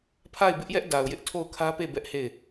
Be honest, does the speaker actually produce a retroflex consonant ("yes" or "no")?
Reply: no